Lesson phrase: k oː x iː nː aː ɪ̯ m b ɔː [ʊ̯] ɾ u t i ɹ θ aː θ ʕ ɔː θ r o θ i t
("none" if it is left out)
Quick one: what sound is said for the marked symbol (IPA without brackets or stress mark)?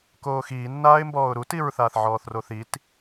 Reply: ʊ̯